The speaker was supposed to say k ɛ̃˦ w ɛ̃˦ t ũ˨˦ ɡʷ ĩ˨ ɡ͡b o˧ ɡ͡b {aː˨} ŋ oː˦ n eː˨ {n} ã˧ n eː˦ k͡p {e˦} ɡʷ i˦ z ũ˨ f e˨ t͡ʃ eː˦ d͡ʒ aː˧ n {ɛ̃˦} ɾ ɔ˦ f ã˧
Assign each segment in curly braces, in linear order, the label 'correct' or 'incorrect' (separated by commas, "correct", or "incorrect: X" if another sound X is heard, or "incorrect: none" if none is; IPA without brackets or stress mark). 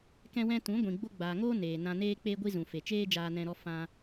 correct, correct, incorrect: eː˦, incorrect: ɛ̃˧